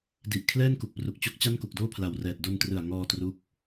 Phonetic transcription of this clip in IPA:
d i˨˩ ʔ kʰ l ɛː˥˩ n k u˨˩ k̚ p r u˨˩ k̚ t͡ɕ o˦˥ k̚ t͡ɕ a˥˩ n k u˨˩ k̚ d oː˥˩ pʰ l a˨˩ w r ɛː˨˩ t̚ d o˧ n t r ɯ˨˩ a̯ ŋ ɔː˧ t r u˦˥ k̚

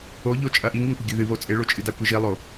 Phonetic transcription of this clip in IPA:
o ʎ o t͡ʃʼ ɐ ʔ i ŋ i ŋ kʷ ɐ ɡʲ ɵ ð ɨ β o t͡sʼ e ɭ o t͡ʃʼ ɨ d a kʷ e ʒ i lˠ o

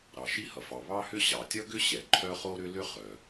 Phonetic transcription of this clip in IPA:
ɾ ɑ˩ ʃ i˥ h ʌ˩ f ɑ˩ β ɑ˥ h ʏ˥ ɕ ɑ˩ tʲ ʌ˥ ɡ ʏ˥ ɕ ɛ˩ ǃʰ œ˥ χ o˥ ɾ ʏ˥ l ʏ˥ χ œ˩

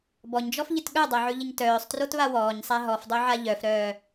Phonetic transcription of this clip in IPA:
b ɔ ɲ d͡ʒ ɔ f ʎ ɪ t ɠ œ dˤ a ʕ ʉ ʎ ɪ ɲ t œː sˤ t r o t β a w ɔː ɲ sˤ a ɦ ɔ f dˤ o ʕ a ʎ œ f ɾ œː

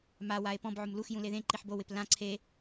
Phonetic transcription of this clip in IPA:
m a w a e̯ p ɔ̃ b ʕ ʊ m l u x j ũ l e ð ẽ ǃ i ħ b o w ɪ p l ã ǀʰ e

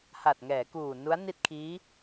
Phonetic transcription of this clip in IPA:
h a˨˩ t̚ ŋ ɛː˩˦ k uː˨˩ n u˦˥ a̯ n i˥˩ t̚ kʰ iː˦˥

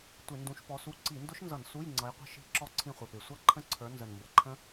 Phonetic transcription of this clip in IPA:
tʷ ɪ˧˩˧ n d ũ˨˦ ʃ p ɔ˨˦ s u˧˥˧ ǀ i˧˩˧ n d ʊ˦˥ ʃ n z ʌ˧˩˧ n s u˧˥˧ j ŋ͡ǀ ʌ˨˦ j qʷ ə̤˦˥ ʃ i̤˧˥˧ ǁ ɔ˦˨ ǀʰ ĩ˦˨ χʷ ɪ˨˩ p ɪ˨˩ sʷ ʌ˦˥ ǃʰ ə̃˦˥ ǀʰ ə˞˨˦ n z ə˨˩ n m b ə˨˦ ǃʰ ə̃˦˥

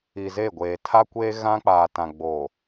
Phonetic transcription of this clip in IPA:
i˨ z e˦˨ ɡʷ eː˨ tʰ a˦ kʷ eː˦ ɣ ã˦ k͡p aː˨ t ã˨ ɡ͡b o˨

